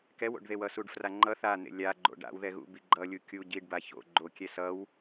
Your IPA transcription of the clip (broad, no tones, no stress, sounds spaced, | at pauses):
k ɛ w o̰ ɖ ð e w ʌ s u ɖ f r a ŋ͡ǃ ʌ θ a n̪ ḛ lʲ a ɡ͡ǃ o̰ ɖ a̰ w ð ɛ ɣ ṵ b i ɡ͡ǃ ʌ lʲ u kʲ u ɟ i ɖ b a ç o̰ ɡ͡ǃ o kʲ ɛ s ʌ w